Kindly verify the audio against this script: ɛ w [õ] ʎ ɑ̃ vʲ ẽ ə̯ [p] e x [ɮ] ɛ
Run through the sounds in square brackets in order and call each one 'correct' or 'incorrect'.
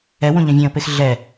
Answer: correct, correct, correct

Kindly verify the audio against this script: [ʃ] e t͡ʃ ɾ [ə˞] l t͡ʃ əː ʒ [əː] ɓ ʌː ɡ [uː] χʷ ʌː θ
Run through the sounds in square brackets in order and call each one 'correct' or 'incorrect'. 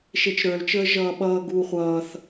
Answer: correct, correct, incorrect: ʌː, correct

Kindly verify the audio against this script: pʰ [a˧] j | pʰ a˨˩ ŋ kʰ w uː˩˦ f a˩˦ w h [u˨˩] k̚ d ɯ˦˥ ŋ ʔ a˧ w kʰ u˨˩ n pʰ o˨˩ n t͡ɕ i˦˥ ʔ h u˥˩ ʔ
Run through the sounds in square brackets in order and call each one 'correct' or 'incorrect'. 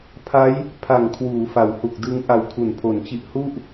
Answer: incorrect: a˦˥, correct

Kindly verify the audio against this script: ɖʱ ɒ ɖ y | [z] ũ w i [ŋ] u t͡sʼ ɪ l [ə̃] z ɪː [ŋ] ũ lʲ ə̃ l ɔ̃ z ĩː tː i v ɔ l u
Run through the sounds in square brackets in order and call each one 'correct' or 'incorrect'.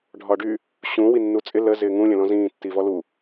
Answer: incorrect: ɕ, incorrect: nː, incorrect: ə, correct

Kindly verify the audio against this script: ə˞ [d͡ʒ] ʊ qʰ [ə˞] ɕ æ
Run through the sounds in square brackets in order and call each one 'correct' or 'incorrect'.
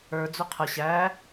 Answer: incorrect: d͡z, incorrect: ə

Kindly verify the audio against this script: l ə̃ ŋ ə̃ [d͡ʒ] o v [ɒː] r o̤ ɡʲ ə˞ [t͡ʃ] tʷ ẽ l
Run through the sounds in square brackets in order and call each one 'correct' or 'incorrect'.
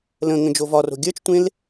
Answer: correct, incorrect: ɒ, correct

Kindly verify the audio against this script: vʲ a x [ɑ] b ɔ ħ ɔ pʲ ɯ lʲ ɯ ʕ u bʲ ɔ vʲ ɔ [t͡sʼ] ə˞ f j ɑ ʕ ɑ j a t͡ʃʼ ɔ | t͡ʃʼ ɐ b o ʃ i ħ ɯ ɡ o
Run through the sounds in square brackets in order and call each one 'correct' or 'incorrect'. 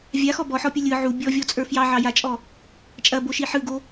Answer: incorrect: ɔ, correct

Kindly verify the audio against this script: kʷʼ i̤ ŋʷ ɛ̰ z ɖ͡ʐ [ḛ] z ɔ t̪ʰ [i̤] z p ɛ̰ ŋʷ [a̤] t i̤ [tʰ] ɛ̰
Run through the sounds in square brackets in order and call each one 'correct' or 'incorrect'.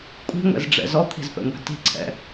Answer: incorrect: ɛ̰, correct, incorrect: æ̤, incorrect: ǀʰ

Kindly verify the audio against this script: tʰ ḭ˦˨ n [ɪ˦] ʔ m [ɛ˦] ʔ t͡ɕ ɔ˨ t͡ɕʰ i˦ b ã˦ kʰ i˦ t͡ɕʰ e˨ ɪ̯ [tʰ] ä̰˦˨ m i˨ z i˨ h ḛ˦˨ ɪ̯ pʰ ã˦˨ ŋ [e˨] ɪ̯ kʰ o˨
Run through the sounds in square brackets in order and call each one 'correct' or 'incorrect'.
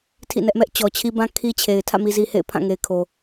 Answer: incorrect: ɛ˦, correct, correct, correct

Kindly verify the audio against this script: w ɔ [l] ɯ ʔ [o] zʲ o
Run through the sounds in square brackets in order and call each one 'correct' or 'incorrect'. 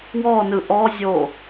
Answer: incorrect: n, incorrect: ɔ

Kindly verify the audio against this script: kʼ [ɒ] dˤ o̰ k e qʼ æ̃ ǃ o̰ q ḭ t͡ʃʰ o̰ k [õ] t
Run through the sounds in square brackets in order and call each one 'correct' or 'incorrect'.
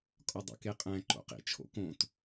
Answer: correct, correct

